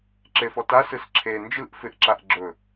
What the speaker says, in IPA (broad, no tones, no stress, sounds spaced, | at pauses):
ǁ e f ɔ t a s ɯ s ǁʰ e n d͡ʒ ɯ ʔ f ɪ ʔ ǁ a ʔ ɡ͡ǁ ɵ